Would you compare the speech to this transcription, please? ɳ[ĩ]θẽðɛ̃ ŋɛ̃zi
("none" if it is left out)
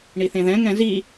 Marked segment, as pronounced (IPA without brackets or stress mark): i